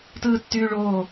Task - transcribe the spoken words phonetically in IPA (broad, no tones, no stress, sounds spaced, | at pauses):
t ɯː tː yː ɭ oː